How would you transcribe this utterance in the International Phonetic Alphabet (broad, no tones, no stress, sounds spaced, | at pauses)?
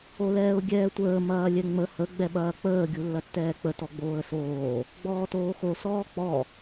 o l ɛː ʊ̯ ɡʲ ɛː tʷ əː m ɐː lʲ ɛ ŋ͡m ə h ə ɡ͡b ɛ ɓ ɐː k͡p əː ɡʲ u lː ɐ tː ɛː k͡p ə t ɔ ɡ͡b oː ə̯ s oː | ɡ͡b ɔː t oː x o s ɔː k͡p ɔ